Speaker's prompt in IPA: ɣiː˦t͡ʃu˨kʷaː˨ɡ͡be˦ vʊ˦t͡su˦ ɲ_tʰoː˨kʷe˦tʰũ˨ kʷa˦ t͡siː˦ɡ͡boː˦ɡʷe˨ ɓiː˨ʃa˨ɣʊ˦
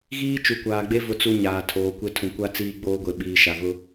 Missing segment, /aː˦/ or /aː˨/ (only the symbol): aː˨